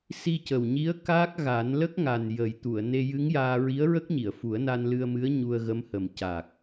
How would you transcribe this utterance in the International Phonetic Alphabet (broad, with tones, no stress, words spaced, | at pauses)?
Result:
si˧cə˨˩wɲi˧˥ə̯ kaː˦˥k̚ɣa˨˩˦n lə˦˥k̚ŋa˨˩n jə˨˩˦jt̪u˨˩˨ə̯ ne˧jɨ˧˥ŋjaː˧ ɹi˧˥ə̯ɹə˦˥k̚ɲi˨˩˨ə̯ fu˨˩˦ə̯na˧nlɨ˧ə̯mɨ˧˥ə̯ ɲu˧ə̯ɣə˧˥mhə˨˩m ca˨˩k̚